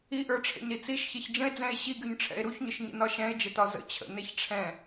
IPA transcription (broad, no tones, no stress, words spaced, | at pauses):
iʔə˞ʈ͡ʂʰɛ̰ɲɾi t͡siʃçeç d͡ʒə̃e̯d͡zɛ̃e̯ ɕiɡyɲʈ͡ʂʰɛ̰e̯ ɾuçɲʊʃɲə̰nɒ ʃɛ̃e̯d͡ʒətɒ zə̰ t͡ɕʰə̰neç ʈ͡ʂʰɛ̃